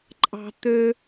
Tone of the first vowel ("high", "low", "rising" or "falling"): high